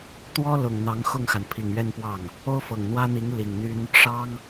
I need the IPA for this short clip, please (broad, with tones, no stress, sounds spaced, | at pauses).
t̪ w ɔ˥ l ʊ˨˩ ŋ n̪ ɑ˧˥ ŋ x ʊ˥˩ ŋ x a˩ n pʰ i˨˩ ŋ ɥ ɛ˥˧ n p w ɑ˥˩ ŋ | o˥ ʊ̯ f ɤ˨˩ ŋ n̪ w ä˥ n̪ i˧˥ ŋ l i˨˩ ŋ n̪ y˥ n | ʂ ɑ˥ ŋ